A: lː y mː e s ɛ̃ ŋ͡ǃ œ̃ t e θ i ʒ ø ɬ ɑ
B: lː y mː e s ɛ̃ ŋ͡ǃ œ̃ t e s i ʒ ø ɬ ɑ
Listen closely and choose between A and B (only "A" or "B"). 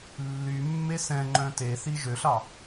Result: A